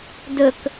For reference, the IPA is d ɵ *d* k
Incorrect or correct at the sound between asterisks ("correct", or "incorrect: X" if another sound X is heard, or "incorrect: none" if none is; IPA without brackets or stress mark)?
incorrect: none